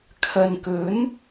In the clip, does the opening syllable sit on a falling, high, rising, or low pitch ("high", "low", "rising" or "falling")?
low